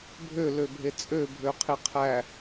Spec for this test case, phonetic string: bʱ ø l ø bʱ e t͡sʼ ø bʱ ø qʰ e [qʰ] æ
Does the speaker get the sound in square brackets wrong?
no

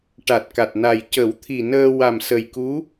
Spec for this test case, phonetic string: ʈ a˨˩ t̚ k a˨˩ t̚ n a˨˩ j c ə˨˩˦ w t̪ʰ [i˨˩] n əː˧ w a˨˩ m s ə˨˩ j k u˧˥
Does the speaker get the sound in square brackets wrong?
no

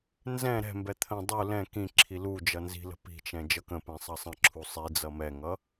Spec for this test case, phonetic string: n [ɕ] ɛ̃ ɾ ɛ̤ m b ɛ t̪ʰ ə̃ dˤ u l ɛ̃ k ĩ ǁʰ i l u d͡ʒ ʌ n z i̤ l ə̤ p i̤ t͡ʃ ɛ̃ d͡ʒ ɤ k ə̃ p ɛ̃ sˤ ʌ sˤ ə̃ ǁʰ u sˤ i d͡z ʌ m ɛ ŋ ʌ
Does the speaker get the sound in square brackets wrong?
yes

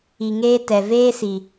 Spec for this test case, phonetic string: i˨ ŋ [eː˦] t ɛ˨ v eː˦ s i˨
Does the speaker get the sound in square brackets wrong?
no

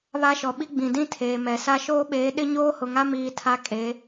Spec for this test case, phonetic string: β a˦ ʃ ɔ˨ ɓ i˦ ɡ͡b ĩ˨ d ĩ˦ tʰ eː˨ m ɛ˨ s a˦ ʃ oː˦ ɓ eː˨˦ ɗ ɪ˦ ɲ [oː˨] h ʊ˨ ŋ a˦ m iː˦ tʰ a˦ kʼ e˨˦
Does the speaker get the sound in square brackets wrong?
yes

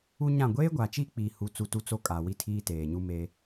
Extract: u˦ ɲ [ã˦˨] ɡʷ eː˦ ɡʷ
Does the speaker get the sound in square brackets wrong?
no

